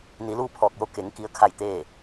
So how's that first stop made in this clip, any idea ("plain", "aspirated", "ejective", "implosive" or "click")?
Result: aspirated